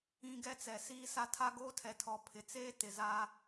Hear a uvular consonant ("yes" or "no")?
no